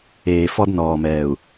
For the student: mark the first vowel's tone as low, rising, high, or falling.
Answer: low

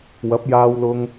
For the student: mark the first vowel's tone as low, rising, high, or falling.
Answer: rising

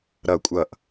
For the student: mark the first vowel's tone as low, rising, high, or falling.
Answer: falling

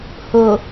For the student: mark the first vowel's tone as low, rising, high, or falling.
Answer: low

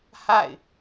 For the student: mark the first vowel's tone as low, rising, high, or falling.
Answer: falling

